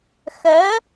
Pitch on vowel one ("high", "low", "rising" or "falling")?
rising